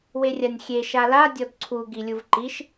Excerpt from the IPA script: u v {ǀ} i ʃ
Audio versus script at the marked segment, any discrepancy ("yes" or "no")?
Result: yes